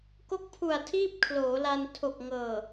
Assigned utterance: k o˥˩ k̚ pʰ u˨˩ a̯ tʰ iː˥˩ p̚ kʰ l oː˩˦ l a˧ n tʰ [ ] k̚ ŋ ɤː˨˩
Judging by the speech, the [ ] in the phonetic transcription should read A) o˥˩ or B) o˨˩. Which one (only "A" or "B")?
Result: B